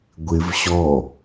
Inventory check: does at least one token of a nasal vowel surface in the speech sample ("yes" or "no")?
no